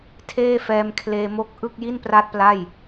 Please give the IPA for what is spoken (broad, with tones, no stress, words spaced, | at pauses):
tʰeː˥˩fɛː˧mkʰleː˧mo˥˩k̚ ʔɯ˥˩k̚ ji˥˩npra˦˥t̚ pla˥˩j